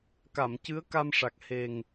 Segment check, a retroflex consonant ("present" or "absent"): present